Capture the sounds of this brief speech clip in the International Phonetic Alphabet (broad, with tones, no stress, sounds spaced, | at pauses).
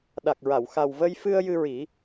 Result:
ɗ a˨˩ k̚ ɹ a˨˩˨ w x a˨˩ w v ə˧ j f ɨ˧ ə̯ j ɨ˧ ɹ i˨˩˦